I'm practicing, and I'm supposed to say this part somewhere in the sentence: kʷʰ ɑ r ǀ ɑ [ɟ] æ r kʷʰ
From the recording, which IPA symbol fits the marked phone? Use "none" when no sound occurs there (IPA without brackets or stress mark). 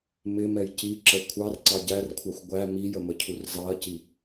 ɟ